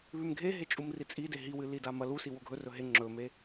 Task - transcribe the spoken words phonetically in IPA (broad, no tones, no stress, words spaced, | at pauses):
βʉmɡʱeɦe t͡ʃʼumrit͡sʼide ɦiwɨ lidamɐ lusi woɡʱɵ rɵɦe ŋ͡ǁɵme